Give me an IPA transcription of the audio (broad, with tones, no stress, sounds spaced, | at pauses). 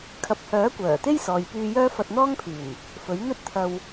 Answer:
kʰ ɐ˨ p̚ h œː˨˥ kʷ œː˨˩ t̪ e˥ j s ɔː˨ j p yː˧ j œː˥ f ɐ˧ t̚ n̪ ɔː˥ ŋ pʰ yː˨˩ n | f ɵ˨˥ ɥ n̪ ɵ˥ t̚ t̪ʰ ɐ˧ w